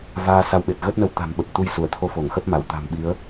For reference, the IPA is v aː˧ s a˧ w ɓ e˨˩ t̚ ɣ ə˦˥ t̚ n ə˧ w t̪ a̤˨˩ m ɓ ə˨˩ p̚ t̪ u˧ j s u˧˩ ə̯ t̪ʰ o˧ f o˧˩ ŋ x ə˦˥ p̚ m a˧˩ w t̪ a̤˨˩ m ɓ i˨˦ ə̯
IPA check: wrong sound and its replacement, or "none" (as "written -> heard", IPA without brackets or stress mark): none